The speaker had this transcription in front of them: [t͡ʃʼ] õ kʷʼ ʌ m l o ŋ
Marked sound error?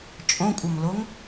no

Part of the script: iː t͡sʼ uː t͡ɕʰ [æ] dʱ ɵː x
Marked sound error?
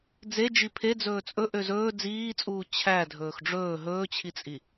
no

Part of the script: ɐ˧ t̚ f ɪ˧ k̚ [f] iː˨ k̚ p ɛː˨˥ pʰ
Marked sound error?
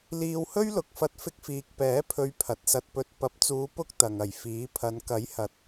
no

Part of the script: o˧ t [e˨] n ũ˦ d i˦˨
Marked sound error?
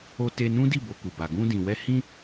yes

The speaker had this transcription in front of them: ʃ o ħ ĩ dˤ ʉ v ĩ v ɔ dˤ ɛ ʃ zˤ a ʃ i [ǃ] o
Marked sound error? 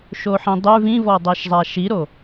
yes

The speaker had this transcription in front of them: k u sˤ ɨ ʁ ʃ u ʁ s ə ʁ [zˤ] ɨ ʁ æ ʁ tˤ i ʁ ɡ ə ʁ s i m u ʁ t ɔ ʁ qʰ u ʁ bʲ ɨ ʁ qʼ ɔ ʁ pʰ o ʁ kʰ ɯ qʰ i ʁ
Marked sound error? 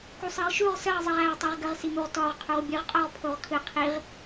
no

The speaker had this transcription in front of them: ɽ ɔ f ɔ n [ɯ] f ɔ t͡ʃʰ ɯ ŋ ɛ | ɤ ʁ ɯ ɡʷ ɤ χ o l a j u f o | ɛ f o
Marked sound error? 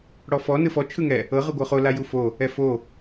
no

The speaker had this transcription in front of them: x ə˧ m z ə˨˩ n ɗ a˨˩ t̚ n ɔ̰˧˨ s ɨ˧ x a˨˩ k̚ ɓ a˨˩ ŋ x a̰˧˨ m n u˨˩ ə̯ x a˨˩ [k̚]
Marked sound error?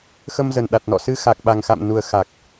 no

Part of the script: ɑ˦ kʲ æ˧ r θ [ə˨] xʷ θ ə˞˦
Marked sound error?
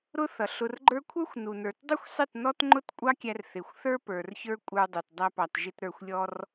yes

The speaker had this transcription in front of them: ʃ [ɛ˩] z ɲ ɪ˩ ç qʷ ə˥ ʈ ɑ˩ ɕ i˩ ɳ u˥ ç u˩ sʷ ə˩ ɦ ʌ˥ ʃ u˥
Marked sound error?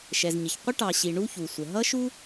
no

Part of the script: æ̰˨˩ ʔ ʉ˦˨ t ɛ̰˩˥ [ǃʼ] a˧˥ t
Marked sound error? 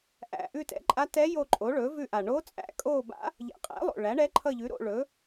no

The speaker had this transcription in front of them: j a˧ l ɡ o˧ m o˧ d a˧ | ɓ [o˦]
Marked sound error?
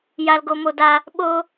no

